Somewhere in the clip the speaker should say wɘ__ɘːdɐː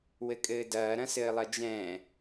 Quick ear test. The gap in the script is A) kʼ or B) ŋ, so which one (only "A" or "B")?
A